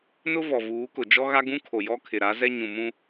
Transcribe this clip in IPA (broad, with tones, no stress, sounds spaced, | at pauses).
n ʊ˦ v ɔ˨ v uː˨˦ k ʊ˨ d͡ʒ ɔ˦ ɣ a˦ ɡ ũ˦ kʰ o˨ j ɔ˦ kʰ ɪ˨ ɾ a˨˦ z ɛ˦ ɲ ũ˨ m ũ˦